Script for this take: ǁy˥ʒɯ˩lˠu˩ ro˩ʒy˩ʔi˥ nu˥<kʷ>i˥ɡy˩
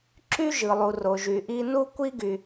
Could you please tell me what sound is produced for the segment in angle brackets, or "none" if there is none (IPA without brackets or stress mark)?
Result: kʷ